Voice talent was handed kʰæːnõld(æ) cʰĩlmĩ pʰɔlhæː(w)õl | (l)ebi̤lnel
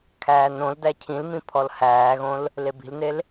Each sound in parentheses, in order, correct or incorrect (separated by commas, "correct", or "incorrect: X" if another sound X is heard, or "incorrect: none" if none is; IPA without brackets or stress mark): correct, incorrect: ɣ, correct